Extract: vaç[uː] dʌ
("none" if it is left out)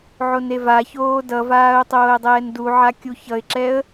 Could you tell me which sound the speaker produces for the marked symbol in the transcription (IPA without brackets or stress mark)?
oː